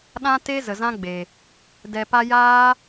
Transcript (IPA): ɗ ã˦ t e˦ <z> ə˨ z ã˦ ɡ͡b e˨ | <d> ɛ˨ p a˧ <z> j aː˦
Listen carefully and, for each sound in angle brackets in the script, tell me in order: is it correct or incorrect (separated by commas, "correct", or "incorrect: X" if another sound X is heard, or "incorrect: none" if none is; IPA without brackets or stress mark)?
correct, correct, incorrect: none